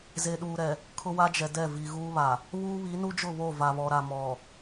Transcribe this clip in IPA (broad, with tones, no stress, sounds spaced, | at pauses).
z e˨ ɗ uː˨ ɾ ɛ˨ | kʰ ʊ˦ w a˦ d͡ʒ ɛ˨ d ɛ˦˨ v i˨ ɣ uː˦ β a˨ | β uː˦ β i˨˦ n u˦ d͡ʒ ʊ˦˨ β o˦˨ v a˨ β ɔ˨ ɾ a˨ m ɔ˨